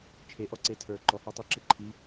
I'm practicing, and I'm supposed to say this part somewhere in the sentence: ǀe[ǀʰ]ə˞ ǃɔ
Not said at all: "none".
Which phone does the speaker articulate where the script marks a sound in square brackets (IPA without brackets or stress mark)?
tʰ